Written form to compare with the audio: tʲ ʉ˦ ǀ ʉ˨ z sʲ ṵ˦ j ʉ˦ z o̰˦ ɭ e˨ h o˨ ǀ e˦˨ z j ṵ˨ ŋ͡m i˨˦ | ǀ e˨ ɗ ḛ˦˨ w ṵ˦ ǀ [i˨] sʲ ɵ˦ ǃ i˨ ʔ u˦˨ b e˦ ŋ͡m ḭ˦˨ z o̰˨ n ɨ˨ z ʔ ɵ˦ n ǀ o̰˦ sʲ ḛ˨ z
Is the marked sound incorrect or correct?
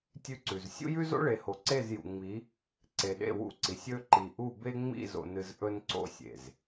correct